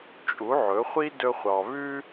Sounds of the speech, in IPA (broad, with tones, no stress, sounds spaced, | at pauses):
t͡ʃʼ u˩˥ ʕ ɵ˩˥ χʷ i˥ d ɵ˥ χʷ ɑ˧ β ʉ˥